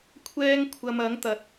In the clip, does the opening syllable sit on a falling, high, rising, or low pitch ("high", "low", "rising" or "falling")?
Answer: high